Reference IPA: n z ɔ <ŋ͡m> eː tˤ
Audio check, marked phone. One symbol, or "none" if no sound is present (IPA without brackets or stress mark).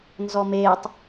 m